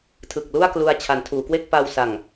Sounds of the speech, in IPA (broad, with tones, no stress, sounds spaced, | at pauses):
tʰ ɯ˨˩ k̚ l u˥˩ a̯ k l u˧ a̯ t͡ɕʰ a˩˦ n tʰ uː˩˦ k w e˥˩ k̚ p a˧ w s a˨˩ ŋ